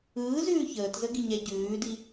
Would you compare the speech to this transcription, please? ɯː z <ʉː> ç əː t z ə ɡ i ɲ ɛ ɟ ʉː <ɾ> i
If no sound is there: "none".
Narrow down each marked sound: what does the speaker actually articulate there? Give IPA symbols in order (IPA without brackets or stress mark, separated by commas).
ʉː, d